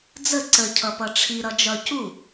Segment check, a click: present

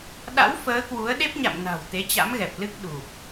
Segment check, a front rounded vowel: absent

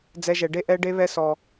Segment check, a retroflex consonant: present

